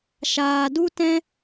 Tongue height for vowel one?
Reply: low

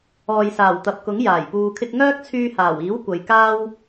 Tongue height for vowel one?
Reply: mid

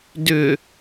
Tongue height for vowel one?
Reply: high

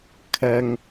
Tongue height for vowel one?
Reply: low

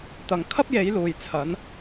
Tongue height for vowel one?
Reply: low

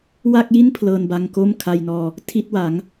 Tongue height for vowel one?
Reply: low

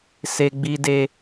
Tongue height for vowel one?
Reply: mid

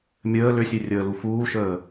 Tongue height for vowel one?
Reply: mid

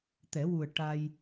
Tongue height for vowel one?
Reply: mid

